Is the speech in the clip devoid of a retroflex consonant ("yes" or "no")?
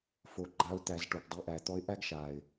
no